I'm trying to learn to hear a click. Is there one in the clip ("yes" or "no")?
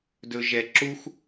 yes